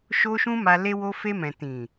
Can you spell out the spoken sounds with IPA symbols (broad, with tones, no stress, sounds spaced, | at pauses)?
ʃ o˦ ʃ ũ˦ m a˧ l e˧ w o˧ f e˧ m ɛ̃˨ t ĩ˨